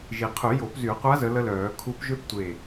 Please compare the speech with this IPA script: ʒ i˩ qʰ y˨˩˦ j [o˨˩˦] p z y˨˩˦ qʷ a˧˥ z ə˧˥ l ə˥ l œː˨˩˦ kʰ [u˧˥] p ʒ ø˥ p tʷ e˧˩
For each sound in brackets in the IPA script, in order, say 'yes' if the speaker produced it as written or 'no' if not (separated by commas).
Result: yes, yes